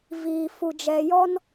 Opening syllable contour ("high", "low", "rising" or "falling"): low